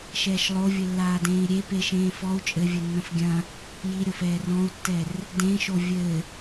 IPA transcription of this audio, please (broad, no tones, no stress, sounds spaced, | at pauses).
ʃ ɛː ʃ lˠ o vʲ ɘ lː aː d ẽː i̯ ɾʲ e p e ʃ ẽː f ɔ u̯ t͡ʃʼ ɘ vʲ ɘ nː ɐ̃ f ɡʲ ɐ̃ | j i ɾʲ o f ɛː r ɔ̃ u̯ tː ɛ r | d ẽ ʃ o vʲ ɘ